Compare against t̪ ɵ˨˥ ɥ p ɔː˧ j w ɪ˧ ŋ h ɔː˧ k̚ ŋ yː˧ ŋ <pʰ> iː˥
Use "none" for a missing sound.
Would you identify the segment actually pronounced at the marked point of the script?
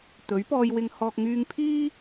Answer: pʰ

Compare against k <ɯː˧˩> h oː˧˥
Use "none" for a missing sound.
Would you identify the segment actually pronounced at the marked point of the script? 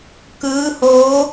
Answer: ɯː˧˥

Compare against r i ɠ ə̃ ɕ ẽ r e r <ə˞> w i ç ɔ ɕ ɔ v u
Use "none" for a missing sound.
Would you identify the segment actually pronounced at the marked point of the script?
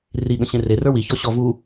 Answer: ə˞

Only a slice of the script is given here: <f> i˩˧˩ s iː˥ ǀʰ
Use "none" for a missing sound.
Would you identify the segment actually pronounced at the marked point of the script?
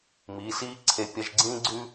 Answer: m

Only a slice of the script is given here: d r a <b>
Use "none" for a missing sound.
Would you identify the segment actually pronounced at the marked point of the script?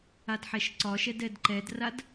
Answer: d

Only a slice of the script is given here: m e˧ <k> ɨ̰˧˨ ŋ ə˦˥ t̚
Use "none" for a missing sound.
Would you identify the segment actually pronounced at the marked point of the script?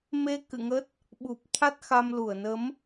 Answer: k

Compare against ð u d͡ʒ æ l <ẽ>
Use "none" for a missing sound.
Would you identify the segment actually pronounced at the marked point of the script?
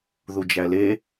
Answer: e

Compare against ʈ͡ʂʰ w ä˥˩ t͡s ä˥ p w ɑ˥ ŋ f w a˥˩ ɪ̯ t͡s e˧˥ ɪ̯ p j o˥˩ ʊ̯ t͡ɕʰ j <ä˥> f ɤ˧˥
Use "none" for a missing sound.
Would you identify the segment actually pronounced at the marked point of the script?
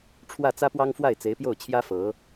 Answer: ä˥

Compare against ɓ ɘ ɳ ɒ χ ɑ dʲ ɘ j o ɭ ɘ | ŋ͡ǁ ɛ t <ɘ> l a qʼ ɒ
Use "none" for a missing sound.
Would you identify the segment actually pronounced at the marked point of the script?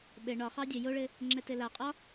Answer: ɘ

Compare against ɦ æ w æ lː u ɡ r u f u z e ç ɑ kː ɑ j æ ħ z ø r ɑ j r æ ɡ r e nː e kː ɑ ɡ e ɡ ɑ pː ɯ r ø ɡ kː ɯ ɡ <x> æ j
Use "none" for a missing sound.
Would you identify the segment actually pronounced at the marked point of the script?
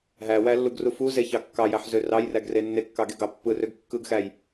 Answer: x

